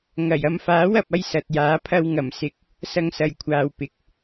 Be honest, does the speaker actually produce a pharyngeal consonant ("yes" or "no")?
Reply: no